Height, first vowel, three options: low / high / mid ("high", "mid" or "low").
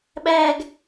low